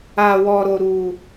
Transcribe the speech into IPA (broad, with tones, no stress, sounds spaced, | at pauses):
a˧ w ɔ˧ ɾ o˧ ɾ u˧